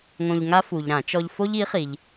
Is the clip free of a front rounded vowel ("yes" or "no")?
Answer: yes